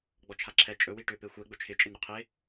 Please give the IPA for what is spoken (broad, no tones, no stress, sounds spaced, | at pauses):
ɡ͡b ɔ t͡ʃʰ a ǁʰ ɛ t͡ʃʼ ɵ w i ʈ ʏ p e xʷ ɛ ɡ͡b ɵ t͡ʃʰ ɪ t͡ʃʼ ɪ n ɾ ʏ qʰ e